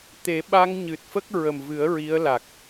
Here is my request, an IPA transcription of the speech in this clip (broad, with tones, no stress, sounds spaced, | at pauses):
t̪ e˨˩˦ ɓ a˧ ŋ ɲ ɨ˨˩ t̚ f ə˦˥ k̚ ɹ ə˨˩ m v ɨ˨˩˦ ə̯ ɹ i˧˥ ə̯ l a˨˩ k̚